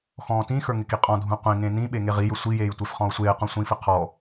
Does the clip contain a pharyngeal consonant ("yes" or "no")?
no